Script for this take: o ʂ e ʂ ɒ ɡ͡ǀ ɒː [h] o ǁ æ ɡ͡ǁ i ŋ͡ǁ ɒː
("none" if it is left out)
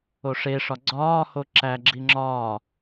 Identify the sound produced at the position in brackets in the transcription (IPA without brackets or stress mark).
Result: h